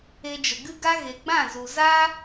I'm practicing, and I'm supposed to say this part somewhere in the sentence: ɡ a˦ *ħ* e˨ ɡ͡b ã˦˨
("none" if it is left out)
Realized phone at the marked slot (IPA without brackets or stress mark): ɣ